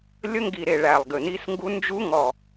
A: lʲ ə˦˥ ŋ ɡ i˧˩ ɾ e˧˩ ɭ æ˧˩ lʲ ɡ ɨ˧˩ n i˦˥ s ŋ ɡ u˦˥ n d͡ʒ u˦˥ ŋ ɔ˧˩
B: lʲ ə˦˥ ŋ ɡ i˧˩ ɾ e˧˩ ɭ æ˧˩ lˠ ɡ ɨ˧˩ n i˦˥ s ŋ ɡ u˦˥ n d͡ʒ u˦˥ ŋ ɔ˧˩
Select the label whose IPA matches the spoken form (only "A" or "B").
B